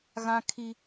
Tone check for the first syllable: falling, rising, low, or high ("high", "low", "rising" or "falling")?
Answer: high